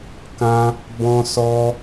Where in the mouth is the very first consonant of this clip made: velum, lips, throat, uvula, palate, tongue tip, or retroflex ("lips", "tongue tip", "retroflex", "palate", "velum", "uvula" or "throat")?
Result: velum